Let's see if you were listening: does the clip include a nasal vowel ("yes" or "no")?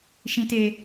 yes